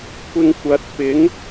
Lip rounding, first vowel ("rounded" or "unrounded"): unrounded